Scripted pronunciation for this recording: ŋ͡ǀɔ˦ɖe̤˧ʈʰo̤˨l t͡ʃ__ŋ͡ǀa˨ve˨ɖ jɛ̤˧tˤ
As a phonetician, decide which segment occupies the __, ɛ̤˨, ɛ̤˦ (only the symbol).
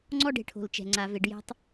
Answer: ɛ̤˨